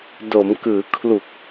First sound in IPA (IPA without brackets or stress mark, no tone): d